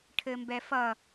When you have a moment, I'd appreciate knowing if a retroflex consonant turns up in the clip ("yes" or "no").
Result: yes